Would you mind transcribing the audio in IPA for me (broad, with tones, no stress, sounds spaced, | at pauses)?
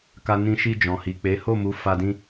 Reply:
k a˧ n ĩ˧ ʃ i˧ d͡ʒ ɔ̃˨ h i˨ k͡p e˨˦ h o˦˨ m u˨˦ f a˧ d ĩ˦